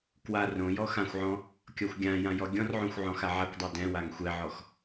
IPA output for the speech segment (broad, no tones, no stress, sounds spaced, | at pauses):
k w a r õ j ɔ x ã xʷ ʕ ɔ̃ | kʲ ɔ xʷ ɡʲ ã j ã j ɔ ɡʲ ɔ̃ r ʕ õ xʷ ʕ ɔ̃ x a ʕ a kʷ dˤ o d ɛ̃ w a ŋ xʷ ɛ ʕ ɔ x